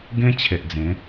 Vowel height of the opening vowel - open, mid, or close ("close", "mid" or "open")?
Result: mid